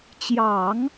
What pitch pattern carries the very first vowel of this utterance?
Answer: low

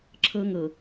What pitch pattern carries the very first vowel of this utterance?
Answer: high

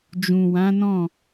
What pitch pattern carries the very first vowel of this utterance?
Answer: low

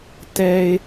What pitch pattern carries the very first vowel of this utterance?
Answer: high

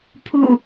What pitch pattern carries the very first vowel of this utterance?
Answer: falling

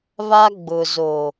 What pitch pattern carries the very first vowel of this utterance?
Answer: high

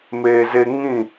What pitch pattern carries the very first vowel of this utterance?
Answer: low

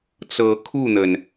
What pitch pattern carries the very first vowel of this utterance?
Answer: rising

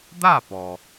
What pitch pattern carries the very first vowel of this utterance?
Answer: falling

